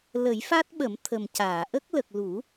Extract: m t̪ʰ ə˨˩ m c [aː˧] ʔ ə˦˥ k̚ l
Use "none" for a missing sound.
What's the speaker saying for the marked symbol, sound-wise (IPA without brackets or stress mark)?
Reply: aː˨˩˨